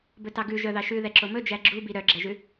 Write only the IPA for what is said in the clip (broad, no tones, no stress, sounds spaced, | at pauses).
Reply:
b ɵ t ɑ ɡ ʉ ʒ œ ð ɑ ʃ ʉ ð ɛ ǁ o m ɵ d͡ʒ æ ɡ͡ǁ u b i ɾ œ ɡ͡ǁ ɛ ʒ ʉ